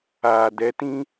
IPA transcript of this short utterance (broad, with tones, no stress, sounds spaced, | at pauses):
aː˨ d ɛ˨˦ t ĩ˦